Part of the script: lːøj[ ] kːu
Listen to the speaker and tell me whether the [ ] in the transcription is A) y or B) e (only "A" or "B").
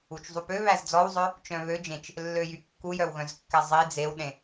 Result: A